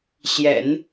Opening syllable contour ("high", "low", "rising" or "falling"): low